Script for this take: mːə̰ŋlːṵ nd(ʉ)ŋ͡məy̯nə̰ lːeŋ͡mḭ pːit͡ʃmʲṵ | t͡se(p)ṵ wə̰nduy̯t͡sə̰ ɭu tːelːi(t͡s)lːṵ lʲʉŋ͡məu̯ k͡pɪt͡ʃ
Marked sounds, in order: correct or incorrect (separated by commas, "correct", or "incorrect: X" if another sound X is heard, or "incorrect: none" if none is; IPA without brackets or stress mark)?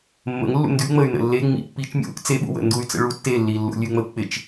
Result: correct, incorrect: ɓ, incorrect: none